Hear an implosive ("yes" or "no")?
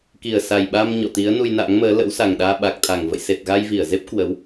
yes